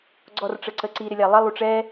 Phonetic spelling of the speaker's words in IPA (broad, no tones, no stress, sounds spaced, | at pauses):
ɡ͡ǀ ɔ r ʈ͡ʂ ə ǀ ə ǀ i ɾ ɪ lʲ æ lˠ ə lˠ u ʈ͡ʂ ɛ